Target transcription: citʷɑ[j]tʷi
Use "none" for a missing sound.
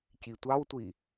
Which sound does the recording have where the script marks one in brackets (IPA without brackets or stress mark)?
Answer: w